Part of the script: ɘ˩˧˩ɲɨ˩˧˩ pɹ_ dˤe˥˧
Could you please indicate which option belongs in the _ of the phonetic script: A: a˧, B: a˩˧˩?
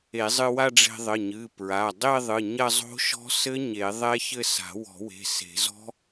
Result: B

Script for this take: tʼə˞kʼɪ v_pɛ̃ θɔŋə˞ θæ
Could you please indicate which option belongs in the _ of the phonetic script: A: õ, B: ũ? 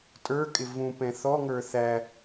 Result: B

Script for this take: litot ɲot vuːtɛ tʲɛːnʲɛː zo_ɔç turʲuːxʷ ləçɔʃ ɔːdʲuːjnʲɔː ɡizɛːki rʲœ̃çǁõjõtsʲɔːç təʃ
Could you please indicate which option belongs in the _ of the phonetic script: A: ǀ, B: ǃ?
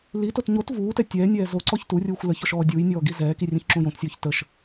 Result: A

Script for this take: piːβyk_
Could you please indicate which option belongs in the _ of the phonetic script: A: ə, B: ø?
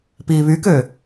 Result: B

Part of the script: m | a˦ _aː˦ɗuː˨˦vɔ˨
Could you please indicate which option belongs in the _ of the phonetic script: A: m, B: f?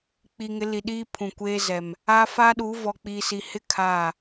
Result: B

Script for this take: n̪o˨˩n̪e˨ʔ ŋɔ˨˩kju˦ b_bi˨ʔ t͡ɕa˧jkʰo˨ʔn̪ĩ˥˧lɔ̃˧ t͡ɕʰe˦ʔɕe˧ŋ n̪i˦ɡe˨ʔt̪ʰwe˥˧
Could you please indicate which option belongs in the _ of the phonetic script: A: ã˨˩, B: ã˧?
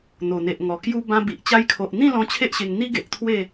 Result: B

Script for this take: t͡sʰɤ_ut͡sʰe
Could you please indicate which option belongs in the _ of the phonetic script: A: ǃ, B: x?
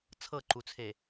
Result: A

